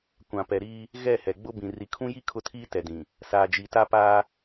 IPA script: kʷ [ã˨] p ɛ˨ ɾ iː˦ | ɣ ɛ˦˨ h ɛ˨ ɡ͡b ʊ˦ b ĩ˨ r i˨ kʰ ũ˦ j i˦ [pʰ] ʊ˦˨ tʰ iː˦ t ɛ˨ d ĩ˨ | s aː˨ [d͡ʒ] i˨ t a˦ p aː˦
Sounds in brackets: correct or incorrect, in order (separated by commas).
correct, incorrect, correct